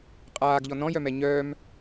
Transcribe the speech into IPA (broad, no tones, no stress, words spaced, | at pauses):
qʼaːɡʎɔ nɔ̃jœmɛ ɲœːm